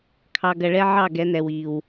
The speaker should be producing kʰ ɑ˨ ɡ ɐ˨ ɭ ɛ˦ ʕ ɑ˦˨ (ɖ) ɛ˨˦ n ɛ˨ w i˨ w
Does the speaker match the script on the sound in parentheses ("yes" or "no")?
no